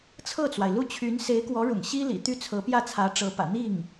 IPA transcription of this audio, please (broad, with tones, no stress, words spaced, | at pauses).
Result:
t͡sʰɤ˥˩t͡swa˩ɪ̯lu˥˩t͡ɕʰy˧˥n se˧˥ɪ̯kwɔ˧˥ɻʊ̰˨˩ŋ ɕi˥ lḭ˨˩ t̪y˥˩t͡sʰɤ˧˥ pjä˥˩t͡sʰä˧˥ ʈ͡ʂɤ˧˥pä̰˨˩ n̪i˥˩ŋ